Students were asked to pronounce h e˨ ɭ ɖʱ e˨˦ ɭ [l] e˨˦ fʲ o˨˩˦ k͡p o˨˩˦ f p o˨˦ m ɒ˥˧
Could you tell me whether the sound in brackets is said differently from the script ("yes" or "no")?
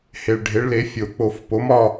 no